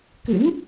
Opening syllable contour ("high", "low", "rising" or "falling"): rising